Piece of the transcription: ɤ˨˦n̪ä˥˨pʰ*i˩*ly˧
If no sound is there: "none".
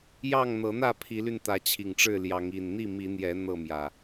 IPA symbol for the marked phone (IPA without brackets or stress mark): i˨˦